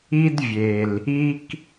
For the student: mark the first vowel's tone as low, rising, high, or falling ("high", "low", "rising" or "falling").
high